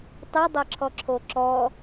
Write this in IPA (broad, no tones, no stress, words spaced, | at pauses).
tˤɨdˤɜǁʰɔǁʰo ǁɔ